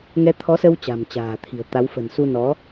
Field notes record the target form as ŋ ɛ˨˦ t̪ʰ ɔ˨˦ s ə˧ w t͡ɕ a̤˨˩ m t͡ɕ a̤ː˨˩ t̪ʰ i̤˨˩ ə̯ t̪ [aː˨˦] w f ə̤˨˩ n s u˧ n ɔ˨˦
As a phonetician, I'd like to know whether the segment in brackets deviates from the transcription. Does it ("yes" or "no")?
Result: yes